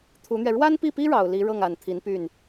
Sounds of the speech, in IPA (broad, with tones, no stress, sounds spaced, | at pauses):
t̪ʰ u˧˥ n̪ ɥ ɛ˧ ɻ w a˥ n p i˥˩ p i˥ ɻ ɑ˨˩ ʊ̯ l i˧˥ ɻ ɤ˥˩ ŋ a˨˩ n t̪ʰ i˧˥ n p y˥˩ n